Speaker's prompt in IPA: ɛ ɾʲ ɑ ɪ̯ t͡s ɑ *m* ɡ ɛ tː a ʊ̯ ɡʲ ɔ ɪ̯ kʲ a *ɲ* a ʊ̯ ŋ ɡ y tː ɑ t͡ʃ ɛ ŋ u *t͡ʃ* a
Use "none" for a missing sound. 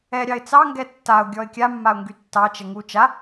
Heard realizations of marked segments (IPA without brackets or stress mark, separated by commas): ŋ, mː, t͡ʃ